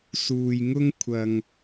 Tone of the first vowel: low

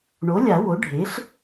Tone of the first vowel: rising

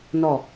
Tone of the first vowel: falling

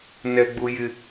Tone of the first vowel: high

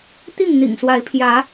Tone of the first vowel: falling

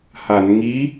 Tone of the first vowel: low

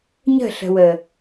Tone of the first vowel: falling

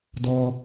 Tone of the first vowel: low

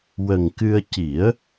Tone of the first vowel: low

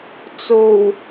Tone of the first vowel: low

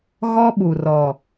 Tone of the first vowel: high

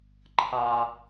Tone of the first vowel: high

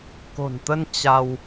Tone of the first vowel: low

